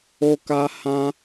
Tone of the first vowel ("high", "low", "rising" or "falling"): high